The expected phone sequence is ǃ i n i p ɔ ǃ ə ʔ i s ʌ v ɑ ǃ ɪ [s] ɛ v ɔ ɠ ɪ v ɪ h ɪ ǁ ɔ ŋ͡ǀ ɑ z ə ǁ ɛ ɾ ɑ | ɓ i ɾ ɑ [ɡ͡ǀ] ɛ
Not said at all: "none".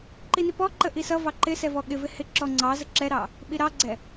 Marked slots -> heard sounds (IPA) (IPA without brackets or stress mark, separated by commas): s, ɡ͡ǀ